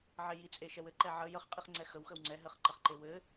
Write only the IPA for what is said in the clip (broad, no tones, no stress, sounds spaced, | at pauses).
ʕ e j i t͡sʼ e ʃ ɛ w ɘ ǃ ɛ ʕ ə j ə χ qʼ i χ ŋ͡ǀ ɛ x ə w x ə w ŋ͡ǀ ɛ ɦ ɘ χ ǃ ɘ χ ǃ e w ɘ